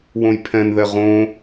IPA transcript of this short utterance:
w õ j pʰ ɛ̃ n ð ɛ ʁ õ

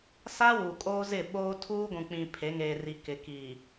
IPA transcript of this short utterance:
s a˦ w u˨ kʼ oː˦ z ɪ˦˨ ɓ oː˦ tʰ uː˦ ɡʷ ũ˨ k͡p ĩ˨ pʰ e˨˦ ŋ eː˨ r i˨ k ɪ˨ k i˨

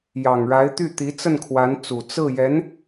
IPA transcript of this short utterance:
j ɑ˨˩ ŋ ɻ a˧˥ ɪ̯ t̪ y˥˩ t̪ i˧˥ t͡s ə˥˩ n kʰ w a˧˥ n t͡s u˨˩ t͡s ɹ̩˥˩ j ɛ˧˥ n

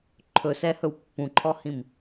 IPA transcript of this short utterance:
ǃʰ ɵ s ɛ h ɵ w pː ũ ǃʰ ɔ h ĩ m

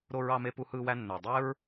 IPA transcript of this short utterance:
ɾ o˧ ɹ ɑ˧ m e˧ p u˧ h ɯː˧ w æ˧ nː ø˨ dˤ e˦ ɹ

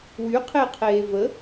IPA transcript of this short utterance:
w y qʰ e qʰ eː v ə

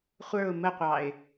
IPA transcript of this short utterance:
χʷ ə˞ ʊ̯ m ə qʷ ɑ ɪ̯

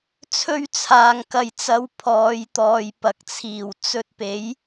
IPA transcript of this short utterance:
t͡sʰ ɵ˥ ɥ t͡sʰ aː˨ ŋ k ɐ˨ j t͡s ɐ˨˧ w pʰ ɔː˨˧ j t̪ ɔː˨ j p ɐ˨˥ k̚ t͡sʰ iː˨˩ w t͡s ɵ˧ t̚ p e˨˥ j

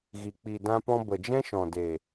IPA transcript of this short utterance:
ɣ i˨ k͡p i˨ d ã˧ p ɔ̃˧ b ə˨ d͡ʒ ɛ̃˦ ʃ ɔ̃˨ d e˨

